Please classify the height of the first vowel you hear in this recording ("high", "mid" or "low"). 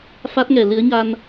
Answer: low